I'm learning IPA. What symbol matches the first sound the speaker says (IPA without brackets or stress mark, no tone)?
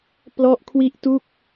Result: p